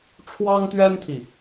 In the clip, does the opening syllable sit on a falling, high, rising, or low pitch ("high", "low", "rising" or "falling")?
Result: high